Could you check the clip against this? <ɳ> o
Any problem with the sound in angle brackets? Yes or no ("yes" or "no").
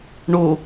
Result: no